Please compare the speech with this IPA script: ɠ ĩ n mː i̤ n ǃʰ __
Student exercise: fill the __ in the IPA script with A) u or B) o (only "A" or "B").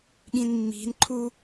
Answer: A